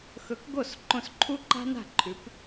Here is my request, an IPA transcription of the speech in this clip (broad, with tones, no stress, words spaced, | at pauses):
xɵ˨˦kɡo˦˨s ǃõ˧sǃʰu˦ǃa̤˦na̤˦˨ ǃʰʉ˨˦p